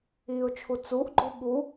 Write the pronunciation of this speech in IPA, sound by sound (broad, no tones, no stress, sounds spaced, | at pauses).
i ʊ̯ t͡ʃʰ u t͡s u ʔ ɡ͡ǃ u ɓ u